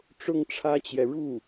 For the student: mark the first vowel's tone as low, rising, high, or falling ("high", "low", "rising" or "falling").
high